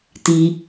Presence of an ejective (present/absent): absent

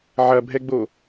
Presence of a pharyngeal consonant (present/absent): present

